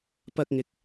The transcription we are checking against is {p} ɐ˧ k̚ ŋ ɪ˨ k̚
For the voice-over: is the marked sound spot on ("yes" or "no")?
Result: yes